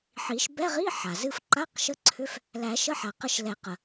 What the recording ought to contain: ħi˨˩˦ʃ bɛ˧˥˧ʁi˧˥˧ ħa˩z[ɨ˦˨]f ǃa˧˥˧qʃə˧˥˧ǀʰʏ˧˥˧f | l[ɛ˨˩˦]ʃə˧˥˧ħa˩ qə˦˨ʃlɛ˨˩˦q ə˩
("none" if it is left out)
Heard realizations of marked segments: ɨ˦˨, æ˨˩˦

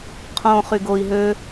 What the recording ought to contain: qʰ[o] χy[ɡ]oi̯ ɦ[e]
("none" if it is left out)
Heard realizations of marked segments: õ, ɡ, ø

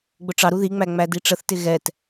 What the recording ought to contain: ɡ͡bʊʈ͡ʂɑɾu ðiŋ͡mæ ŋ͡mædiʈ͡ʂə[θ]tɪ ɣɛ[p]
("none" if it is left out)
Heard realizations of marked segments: θ, t

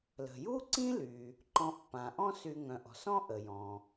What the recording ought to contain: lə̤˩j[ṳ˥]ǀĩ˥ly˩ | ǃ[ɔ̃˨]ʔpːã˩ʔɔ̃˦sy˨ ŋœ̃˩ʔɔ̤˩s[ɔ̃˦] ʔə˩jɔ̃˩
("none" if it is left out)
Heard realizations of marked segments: u˥, ɔ̃˨, ɔ̃˦

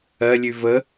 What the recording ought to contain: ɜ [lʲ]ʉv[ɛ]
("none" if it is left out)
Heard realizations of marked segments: lʲ, ə

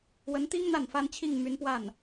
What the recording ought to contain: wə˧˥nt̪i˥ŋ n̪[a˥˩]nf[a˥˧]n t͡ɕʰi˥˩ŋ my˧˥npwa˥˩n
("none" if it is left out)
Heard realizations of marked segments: a˥˩, a˥

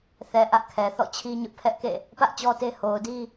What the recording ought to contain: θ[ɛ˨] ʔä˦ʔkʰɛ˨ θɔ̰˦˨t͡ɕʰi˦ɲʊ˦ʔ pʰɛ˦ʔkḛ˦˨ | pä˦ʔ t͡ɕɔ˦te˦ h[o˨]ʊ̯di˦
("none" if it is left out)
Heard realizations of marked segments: ɛ˨, o˨

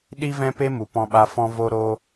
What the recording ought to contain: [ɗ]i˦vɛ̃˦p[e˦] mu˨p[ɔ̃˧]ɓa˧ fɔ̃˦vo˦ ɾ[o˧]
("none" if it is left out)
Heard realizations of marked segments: ɗ, e˦, ɔ̃˧, o˧

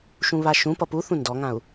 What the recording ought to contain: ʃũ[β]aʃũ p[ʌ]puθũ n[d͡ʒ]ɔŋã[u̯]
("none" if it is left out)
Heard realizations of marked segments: β, ʌ, d, u̯

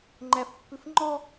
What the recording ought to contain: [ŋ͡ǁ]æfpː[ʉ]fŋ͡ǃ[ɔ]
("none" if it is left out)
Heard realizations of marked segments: ŋ͡ǃ, ʉ, ɔ

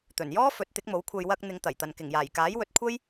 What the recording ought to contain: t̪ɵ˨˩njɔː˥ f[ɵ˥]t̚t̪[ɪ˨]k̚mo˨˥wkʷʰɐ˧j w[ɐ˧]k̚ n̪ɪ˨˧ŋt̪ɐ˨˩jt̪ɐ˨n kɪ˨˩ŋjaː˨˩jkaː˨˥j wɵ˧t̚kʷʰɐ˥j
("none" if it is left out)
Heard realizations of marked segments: ɵ˨˥, ɪ˨˥, ɐ˧

